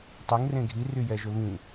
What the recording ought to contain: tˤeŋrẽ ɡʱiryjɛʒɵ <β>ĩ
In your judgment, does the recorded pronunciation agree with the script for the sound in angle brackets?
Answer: yes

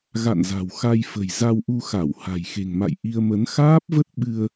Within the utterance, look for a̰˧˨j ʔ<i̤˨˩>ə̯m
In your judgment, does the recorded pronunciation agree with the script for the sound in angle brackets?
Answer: no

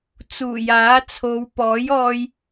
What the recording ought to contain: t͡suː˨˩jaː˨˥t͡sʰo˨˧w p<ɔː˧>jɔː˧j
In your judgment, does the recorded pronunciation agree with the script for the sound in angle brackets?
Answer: no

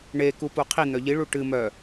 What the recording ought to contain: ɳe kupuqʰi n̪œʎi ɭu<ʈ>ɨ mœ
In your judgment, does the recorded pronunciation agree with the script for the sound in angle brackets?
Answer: yes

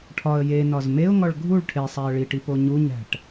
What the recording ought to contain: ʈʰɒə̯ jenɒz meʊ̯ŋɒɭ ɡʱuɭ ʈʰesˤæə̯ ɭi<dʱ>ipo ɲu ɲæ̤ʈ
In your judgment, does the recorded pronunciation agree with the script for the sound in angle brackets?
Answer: no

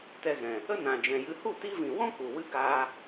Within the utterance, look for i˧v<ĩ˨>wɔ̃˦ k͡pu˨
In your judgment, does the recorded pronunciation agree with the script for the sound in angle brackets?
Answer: yes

